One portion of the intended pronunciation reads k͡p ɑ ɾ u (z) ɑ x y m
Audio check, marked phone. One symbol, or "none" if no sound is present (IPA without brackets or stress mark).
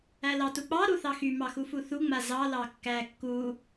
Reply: θ